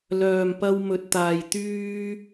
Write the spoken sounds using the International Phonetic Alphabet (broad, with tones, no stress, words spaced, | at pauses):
lœː˧mpɐ˥w mɵ˧t̚t̪aː˧j t̪yː˥